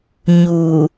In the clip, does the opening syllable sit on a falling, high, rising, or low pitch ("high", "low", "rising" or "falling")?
low